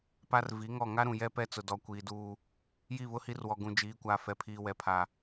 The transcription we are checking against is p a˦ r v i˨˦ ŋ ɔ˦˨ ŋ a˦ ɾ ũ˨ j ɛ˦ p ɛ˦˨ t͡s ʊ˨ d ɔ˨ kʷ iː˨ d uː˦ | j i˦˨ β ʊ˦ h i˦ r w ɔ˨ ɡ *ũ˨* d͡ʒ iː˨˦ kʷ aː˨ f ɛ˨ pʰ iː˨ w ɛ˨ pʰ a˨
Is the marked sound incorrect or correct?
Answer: correct